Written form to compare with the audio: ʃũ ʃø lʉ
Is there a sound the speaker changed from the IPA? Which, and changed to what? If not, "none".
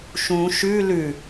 ø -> ʉ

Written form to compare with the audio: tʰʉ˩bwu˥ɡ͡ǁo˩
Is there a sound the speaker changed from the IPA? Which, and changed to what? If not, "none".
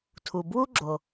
ʉ˩ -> u˩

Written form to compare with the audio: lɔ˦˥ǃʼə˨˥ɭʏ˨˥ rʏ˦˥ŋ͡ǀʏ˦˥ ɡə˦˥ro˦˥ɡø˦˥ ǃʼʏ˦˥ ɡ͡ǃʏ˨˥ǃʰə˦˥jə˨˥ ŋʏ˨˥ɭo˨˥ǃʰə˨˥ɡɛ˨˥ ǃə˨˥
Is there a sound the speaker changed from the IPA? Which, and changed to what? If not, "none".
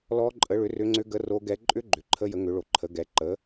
ø˦˥ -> ɛ˦˥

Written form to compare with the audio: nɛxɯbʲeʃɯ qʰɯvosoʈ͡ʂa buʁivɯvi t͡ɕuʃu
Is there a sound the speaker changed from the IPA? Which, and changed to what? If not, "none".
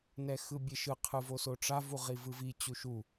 b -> v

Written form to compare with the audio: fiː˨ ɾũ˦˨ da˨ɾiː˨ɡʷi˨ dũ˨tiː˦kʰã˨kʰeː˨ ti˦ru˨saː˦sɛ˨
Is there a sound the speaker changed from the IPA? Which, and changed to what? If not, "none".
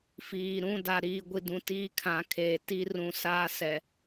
u˨ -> ũ˨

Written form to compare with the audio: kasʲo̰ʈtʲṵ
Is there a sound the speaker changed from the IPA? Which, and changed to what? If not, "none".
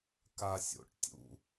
none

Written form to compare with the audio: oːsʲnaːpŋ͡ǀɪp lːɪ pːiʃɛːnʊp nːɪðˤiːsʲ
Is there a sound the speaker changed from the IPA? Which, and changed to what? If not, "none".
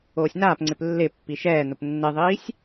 none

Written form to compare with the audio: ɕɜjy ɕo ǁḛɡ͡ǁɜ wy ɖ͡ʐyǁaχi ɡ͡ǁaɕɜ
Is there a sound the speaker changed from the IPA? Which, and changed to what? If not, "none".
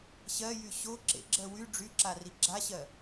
χ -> r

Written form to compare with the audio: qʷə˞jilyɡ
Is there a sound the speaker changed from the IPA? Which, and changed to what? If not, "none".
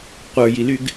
none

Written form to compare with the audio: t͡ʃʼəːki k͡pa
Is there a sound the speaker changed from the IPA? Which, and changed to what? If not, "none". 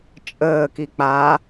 none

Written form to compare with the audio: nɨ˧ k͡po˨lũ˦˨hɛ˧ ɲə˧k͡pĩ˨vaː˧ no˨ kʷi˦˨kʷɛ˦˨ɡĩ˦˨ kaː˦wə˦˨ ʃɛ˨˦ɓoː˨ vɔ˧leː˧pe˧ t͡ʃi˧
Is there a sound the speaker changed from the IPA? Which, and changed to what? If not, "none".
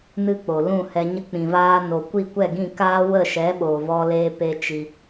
none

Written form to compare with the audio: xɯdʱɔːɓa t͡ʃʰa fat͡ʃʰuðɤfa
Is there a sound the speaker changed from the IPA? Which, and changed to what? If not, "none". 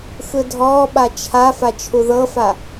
none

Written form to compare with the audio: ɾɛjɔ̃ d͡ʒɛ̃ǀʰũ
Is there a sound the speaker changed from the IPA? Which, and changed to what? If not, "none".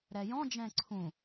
none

